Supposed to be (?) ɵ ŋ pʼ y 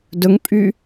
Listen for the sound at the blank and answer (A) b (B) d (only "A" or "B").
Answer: B